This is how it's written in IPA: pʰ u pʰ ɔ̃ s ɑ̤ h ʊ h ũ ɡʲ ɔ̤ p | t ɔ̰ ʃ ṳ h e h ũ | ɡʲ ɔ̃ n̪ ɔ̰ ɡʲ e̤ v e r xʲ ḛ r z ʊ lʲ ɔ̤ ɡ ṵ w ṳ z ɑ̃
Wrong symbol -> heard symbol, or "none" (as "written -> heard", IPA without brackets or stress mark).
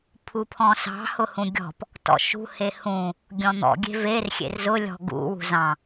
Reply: none